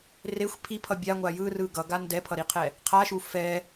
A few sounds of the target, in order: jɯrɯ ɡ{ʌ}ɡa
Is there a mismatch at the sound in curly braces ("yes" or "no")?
no